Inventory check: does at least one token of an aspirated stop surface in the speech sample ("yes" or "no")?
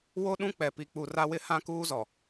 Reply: no